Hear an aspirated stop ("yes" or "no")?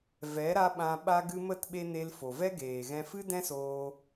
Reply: no